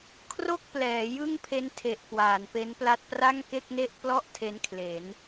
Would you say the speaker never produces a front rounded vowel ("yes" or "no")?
yes